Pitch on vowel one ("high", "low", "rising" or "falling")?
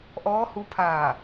rising